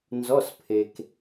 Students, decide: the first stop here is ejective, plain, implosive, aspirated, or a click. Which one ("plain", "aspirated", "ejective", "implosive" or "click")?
aspirated